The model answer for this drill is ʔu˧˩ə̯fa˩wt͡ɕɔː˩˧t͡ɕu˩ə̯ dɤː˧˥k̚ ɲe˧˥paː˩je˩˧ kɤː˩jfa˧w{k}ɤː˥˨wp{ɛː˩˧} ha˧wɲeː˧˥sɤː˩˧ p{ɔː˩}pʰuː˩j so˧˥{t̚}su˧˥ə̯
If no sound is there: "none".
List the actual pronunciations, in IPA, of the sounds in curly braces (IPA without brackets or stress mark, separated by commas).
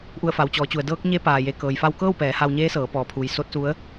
k, ɛː˩˧, ɔː˩, t̚